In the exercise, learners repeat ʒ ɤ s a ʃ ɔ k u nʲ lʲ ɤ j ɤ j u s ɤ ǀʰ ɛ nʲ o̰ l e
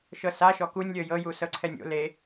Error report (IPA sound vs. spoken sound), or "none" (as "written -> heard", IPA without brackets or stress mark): ʒ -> ʃ